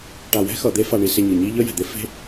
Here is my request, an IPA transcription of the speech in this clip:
ʈ a˨ w ɛ̤˦ x ʌ˨ d̪ e˦ f a˨ ɳ i˨ s e˨ ɲ ɯ˨ ɲ i˦ ʎ ʌ˦ j ɛ̤˨ d̪ e˦ f e̤˦

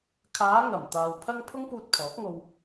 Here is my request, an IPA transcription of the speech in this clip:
kʰ aː˨˧ ŋ ɐ˨˩ m t̪ aː˨ w pʰ ɐ˥ ŋ pʰ ʊ˥ ŋ p uː˧ t̚ pʰ ɔː˨˥ k̚ ŋ o˧ w

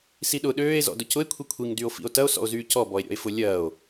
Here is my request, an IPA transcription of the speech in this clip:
s i ɗ ʊ ɗ øː e̯ z ɔ̰ d ʊ c ʊ e̯ kʷʰ i kʷʰ i ŋ d y o̯ f ḭ o̯ t ɐ o̯ s ɔ̰ o̯ z yː c ɔ b ɔ e̯ ɾʲ ɔ̰ e̯ f ʊ lʲ ɐː o̯

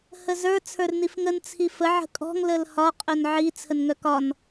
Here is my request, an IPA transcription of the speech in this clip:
h ə z ə˞ t͡sʰ ə˞ r n i f ŋ ə n t͡sʰ i f ə ʕ ə̤ kʼ ɔ̤ ŋ l ə l h ɒ qʼ œ n ʕ i t͡sʰ ə n ŋ œ k ɒ n

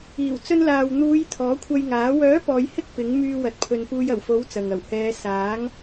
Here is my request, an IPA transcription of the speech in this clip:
iː˨˩ w t͡s ɵ˧ n l aː˨ w n̪ uː˨˧ j t̪ʰ ɔː˨˥ kʷʰ ɐ˧ j ŋ aː˨˥ w œː˨˥ p ɔː˨˧ j h ɪ˥ k̚ p ɪ˨˥ ŋ m yː˧ w ɐ˨ t̚ pʰ ɵ˨ n p uː˧ j ɐ˨˩ w f o˨˥ w t͡s ɐ˨ ŋ ɐ˨˩ w h ɛː˨˧ s aː˨˥ ŋ

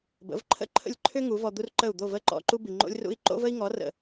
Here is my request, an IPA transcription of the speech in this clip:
b ə̰˩˥ v ǃʰ ə̰˥ ǃʰ ə̰˥˩ lʲ ǃʰ ʏ˥ ŋ u˩˥ v ɔ˧ d̪ u˥ r ǃ ə˥˩ u̯ d̪ o˥˩ v ə˥˩ ǃ ɔ̰˧ ǃ u˥ b i˩ ŋ͡ǃ o̰˥ lʲ r ṵ˥ i̯ ǃ o̰˥ v ə˥ i̯ ŋ ɔ˩˥ r ə̰˩

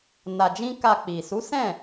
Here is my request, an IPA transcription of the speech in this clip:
n a˧ d͡ʒ ĩ˦ k a˧ k͡p i˨ s u˨˦ s ɛ̃˦˨

